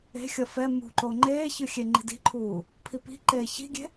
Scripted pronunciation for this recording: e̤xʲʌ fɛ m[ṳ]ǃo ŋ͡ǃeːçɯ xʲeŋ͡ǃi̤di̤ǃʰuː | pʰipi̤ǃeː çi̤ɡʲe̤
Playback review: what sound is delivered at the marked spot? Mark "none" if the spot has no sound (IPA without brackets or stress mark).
ṳ